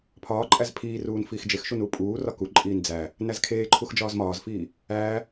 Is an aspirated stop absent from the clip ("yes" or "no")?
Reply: no